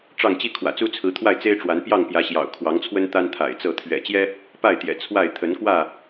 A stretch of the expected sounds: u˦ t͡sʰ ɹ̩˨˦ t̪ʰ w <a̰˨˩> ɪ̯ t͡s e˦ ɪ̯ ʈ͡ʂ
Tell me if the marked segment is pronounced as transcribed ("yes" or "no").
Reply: no